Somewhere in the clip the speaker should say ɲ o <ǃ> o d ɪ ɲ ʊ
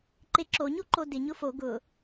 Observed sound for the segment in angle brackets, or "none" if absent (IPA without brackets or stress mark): ǃ